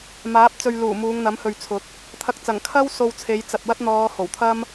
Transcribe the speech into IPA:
maː˨˥p̚ t͡sɵ˨ɥ luː˨˩ muː˨˧ŋn̪ɐ˨˥mhɵ˨ɥt͡sʰʊ˨˥k̚ | t̪ʰɐ˨k̚t͡sɐ˨˩ŋ kʰɐ˥w so˧wt͡sʰe˨˧jt͡sɐ˨t̚wɐ˥t̚ n̪ɔː˨˧ ho˨˩wt̪ʰɐ˥m

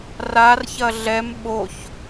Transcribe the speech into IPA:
rarçɐ ɮɛm ɓoç

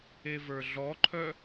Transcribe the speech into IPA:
evə˞ɮɔǃʰœ

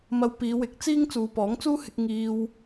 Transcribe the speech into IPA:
mɐ˧wpiː˨˧wɪ˨˥k̚ t͡siː˥ŋ t͡suː˨˧pɔː˨˥ŋt͡suː˥hɪ˧k̚ ŋiː˧w

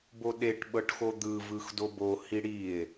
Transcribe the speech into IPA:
boɗeʈ ɓɤʈxod̪ɯ vɯxdobo hiɽie̯

